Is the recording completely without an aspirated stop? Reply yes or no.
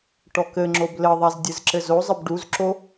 yes